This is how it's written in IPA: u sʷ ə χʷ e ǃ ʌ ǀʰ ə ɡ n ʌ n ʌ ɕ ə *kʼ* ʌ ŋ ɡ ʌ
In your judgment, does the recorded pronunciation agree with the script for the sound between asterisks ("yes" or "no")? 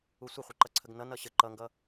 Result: no